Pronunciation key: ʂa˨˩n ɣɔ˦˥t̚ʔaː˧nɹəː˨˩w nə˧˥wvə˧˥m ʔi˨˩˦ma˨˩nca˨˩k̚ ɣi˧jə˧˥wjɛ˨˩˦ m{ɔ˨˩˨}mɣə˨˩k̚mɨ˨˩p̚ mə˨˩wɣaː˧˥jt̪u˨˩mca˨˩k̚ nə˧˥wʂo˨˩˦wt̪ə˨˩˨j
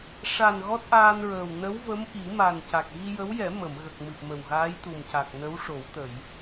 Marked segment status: incorrect: ə˨˩˨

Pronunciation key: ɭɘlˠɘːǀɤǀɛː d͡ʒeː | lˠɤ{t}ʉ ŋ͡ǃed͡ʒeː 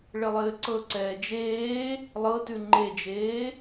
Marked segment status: correct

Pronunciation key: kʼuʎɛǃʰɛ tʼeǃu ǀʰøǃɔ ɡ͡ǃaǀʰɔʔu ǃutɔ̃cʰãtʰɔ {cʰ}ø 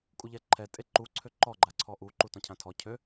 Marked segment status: correct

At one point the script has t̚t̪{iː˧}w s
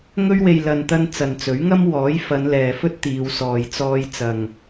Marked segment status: incorrect: iː˨˧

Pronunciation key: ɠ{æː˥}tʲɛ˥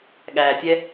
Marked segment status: incorrect: æː˨˩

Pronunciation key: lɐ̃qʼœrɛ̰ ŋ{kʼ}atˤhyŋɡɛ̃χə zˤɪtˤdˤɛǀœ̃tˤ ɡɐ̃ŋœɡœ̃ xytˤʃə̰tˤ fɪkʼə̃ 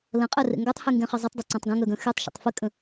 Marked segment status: incorrect: ɡ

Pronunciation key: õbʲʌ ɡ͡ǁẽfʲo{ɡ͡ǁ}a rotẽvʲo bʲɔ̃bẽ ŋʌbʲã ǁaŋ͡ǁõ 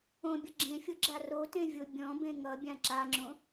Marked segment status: correct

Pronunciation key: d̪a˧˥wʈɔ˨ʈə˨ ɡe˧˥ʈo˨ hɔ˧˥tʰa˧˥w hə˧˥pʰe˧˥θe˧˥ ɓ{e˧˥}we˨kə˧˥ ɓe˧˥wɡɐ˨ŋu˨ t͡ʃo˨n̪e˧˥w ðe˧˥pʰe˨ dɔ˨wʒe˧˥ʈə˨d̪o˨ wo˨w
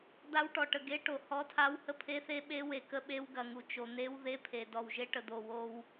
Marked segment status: correct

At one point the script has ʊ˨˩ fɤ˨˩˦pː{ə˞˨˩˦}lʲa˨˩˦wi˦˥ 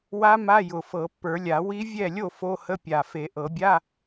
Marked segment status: correct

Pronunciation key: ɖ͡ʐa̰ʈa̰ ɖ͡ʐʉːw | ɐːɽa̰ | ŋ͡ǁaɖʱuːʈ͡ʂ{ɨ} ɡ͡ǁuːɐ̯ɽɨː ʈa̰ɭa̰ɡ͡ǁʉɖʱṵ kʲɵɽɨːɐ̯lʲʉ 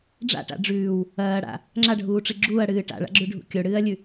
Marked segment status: correct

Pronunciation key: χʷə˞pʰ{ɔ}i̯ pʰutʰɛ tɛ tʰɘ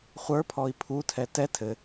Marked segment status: correct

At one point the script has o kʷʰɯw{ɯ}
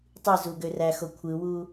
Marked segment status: incorrect: u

